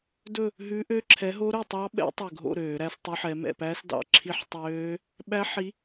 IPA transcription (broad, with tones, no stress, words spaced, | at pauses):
dɵ˥˨ | ɦʉ˦˥ ʔø˦˥ǁʰɛ˨˦ɦo˦˥ɾœ˥˨ tˤɑ˦˥ɓɛ̰˦˥ tˤø˧˩ɡʱo̰˥˨ ɾøː˧˩˧ɾæ˦˥stˤo˦˥ħɛ˨˦ mɛ̰˥˨pæ˦˥s dɑ̰˥˨ǁʰi˦˥ħtˤøː˦˥ | ɓæ˦˥ ħi˨˦